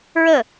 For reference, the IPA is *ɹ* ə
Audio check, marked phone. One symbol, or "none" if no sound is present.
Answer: ɹ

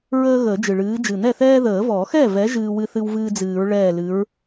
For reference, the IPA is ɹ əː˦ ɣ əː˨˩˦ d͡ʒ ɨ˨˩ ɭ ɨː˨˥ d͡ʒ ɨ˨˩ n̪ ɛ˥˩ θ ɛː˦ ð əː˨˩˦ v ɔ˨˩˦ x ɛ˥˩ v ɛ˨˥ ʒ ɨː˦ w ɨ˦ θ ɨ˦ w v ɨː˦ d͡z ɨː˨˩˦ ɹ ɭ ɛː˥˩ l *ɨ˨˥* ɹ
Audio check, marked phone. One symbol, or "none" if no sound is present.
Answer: ɨ˨˥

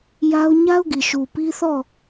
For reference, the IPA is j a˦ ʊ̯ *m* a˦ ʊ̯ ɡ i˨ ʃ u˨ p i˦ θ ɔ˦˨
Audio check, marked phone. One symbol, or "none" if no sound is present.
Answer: ɲ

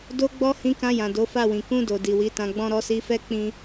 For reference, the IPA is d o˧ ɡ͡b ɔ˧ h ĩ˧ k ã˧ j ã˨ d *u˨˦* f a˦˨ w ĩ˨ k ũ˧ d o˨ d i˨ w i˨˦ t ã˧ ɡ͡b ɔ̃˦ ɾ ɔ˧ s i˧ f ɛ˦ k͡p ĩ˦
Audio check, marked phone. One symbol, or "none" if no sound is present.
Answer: o˨˦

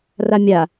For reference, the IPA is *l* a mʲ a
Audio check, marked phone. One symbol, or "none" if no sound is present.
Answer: r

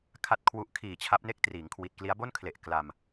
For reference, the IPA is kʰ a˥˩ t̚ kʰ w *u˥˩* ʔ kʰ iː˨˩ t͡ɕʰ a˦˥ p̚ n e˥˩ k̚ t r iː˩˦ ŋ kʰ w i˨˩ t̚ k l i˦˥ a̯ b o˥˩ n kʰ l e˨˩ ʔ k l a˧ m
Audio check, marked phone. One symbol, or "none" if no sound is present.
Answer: u˥˩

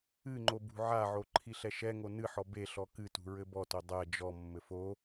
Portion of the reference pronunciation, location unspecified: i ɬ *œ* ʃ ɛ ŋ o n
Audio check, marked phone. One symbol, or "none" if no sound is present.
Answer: ɛ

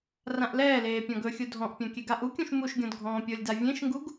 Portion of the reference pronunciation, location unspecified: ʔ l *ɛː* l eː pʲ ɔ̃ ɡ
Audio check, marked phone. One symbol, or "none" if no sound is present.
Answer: ɛː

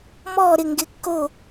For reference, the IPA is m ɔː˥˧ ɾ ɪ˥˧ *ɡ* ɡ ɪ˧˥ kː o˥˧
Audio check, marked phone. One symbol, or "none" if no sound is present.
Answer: ŋ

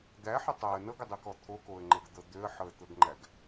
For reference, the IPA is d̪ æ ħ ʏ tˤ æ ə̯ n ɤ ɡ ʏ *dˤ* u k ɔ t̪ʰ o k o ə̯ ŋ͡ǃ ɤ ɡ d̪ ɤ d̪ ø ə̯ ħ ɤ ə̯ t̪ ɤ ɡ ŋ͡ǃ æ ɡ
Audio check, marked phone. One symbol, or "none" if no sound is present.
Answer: dˤ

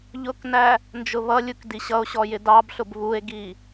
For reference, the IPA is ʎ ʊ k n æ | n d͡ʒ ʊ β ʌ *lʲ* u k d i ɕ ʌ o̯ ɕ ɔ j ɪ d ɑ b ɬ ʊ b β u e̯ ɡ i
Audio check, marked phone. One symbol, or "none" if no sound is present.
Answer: lʲ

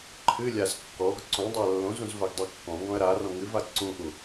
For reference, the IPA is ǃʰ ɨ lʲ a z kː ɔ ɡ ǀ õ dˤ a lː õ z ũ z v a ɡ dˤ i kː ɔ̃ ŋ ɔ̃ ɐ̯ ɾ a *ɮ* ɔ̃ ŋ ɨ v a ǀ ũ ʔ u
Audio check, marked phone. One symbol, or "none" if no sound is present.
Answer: r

